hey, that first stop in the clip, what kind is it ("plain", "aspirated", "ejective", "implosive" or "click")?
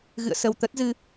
plain